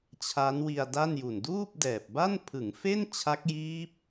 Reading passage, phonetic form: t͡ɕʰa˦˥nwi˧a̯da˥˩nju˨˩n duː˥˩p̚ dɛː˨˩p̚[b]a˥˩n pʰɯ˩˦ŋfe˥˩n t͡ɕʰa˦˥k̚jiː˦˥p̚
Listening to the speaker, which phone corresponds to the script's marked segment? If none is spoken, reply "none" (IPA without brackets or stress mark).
b